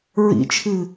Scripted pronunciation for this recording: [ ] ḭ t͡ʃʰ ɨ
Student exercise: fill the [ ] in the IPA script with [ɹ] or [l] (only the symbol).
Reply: ɹ